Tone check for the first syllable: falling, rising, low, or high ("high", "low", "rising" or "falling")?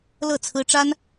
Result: falling